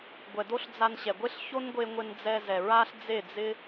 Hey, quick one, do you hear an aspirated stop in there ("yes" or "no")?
no